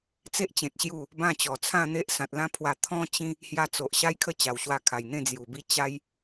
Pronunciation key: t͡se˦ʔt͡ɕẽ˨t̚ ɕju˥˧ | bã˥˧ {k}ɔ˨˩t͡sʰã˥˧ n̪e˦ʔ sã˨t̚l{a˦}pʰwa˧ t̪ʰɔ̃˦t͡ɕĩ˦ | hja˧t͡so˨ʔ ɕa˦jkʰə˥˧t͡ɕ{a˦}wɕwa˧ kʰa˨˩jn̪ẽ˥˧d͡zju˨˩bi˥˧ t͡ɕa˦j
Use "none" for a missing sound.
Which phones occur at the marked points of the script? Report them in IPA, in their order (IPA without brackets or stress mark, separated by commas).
t͡ɕ, ã˦, a˨˩